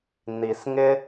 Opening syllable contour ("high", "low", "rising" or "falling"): low